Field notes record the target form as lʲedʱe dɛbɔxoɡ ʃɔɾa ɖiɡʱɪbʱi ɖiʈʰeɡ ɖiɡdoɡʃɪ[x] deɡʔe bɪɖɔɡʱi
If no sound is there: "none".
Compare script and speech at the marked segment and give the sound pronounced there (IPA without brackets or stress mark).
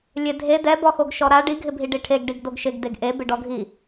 ɡ